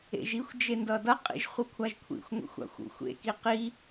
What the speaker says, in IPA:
ḛ ʒ i xʷ d͡ʒ e n d ʌ d ʌ qʼ ḭ ʒ χʷ ɯ kʷʰ a ʒ kʷʰ ḭ xʷ ŋʷ ḭ xʷ a̰ xʷ ṵ xʷ ḛ k i q i

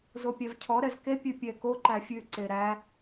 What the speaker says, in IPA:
z o pʲ æ v cʰ ɔ ɾ ɛ z k e pʲ ʉ pʲ ɛ k o ǃ æ fʲ ʉ ǀ e ɾ æ

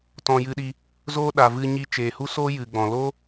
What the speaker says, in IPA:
t ɔ̃˧ j ɨ˧ ɗ i˧ | z oː˦ ɗ a˨ v ɨ˧ ɲ i˧ t͡ʃ eː˨ h u˦ s oː˦ j ɨ˨ ɡ͡b ɔ̃˨ l o˦

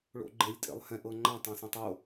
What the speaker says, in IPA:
ɭ o̰ ɡ͡ǃ e lʲ tʼ ḛ lˠ h ɛ̃ ʔ ɤ ŋ͡ǃ ã tˤ ɛ̃ s ẽ tˤ o

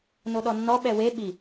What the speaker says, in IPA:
n o ɗ ɔ nː ɔ ɓ ɛ w e ɓ i

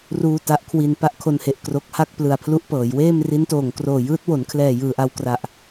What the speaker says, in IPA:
r uː˧ t a˦˥ ʔ kʰ w i˧ n p a˥˩ ʔ kʰ o˧ n h e˨˩ ʔ k r o˦˥ k̚ h a˥˩ k̚ p l ɯ˨˩ a̯ pʰ l u˦˥ ʔ p ɤː˩˦ j w eː˥˩ m r i˦˥ n t oː˨˩ ŋ k r oː˨˩ j ɯː˦˥ t̚ w o˩˦ n kʰ l ɛː˨˩ j ɯː˨˩ ʔ a˧ w k r a˨˩ ʔ

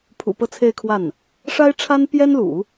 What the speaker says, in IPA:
pʰ ṵ˨˩ p ɤ˥˧ t͡sʰ e˥˧ ɪ̯ kʰ w a˥˩ n | ʂ a˥ ɪ̯ ʈ͡ʂʰ a˥ n p j ɛ˥ n l ṵ˨˩˦

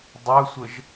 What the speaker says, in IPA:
dˤ ə sʷ ə ʒ

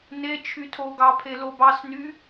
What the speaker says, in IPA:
n e t͡ʃʰ y tʰ o ɡ ɑ pʰ e l o b ɑ s n y

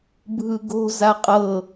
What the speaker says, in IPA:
bʱ ɯ ɡ o̤ z a qʼ ɤ

